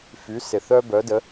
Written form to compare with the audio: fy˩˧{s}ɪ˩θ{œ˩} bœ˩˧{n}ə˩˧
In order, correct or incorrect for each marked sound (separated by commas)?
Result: correct, incorrect, incorrect